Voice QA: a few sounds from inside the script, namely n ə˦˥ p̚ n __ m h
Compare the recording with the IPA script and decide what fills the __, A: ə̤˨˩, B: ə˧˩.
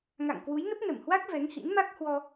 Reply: B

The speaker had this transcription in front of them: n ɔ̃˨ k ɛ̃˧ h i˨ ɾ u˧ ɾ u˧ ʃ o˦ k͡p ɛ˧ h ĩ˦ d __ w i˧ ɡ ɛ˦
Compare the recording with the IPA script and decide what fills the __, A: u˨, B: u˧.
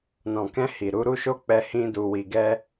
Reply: B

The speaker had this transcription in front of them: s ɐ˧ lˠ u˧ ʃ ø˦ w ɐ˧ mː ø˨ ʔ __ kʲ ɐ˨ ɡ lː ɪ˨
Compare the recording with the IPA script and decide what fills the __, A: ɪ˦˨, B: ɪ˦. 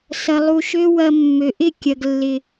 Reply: A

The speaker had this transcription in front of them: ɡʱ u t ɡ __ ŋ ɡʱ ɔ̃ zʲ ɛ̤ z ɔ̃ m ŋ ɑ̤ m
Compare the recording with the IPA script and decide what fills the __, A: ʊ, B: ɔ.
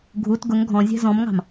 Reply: A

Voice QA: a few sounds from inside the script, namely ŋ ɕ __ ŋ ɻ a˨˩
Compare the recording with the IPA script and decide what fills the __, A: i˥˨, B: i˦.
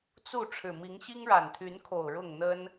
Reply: B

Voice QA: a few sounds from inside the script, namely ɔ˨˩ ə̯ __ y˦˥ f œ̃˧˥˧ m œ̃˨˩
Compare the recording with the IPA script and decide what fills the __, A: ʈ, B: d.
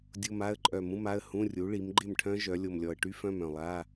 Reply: A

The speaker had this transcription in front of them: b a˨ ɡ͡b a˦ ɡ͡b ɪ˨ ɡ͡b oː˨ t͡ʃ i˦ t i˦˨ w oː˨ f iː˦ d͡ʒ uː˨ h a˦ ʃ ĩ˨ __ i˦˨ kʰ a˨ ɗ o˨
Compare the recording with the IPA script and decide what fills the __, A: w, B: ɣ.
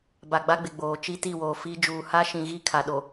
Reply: B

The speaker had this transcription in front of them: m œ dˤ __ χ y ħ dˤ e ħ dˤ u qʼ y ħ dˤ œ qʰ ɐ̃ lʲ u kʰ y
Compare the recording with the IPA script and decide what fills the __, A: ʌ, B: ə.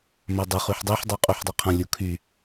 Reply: B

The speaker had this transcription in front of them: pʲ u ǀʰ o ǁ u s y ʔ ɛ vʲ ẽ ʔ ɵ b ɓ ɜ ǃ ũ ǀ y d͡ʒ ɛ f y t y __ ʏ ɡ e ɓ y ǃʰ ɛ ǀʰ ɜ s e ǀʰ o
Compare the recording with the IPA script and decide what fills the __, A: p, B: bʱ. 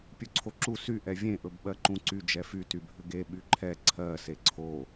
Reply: B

